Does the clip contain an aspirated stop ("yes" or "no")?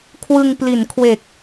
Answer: yes